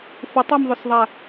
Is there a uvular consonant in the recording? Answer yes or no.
no